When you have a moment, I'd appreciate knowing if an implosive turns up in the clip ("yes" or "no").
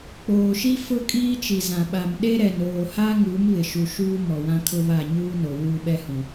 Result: yes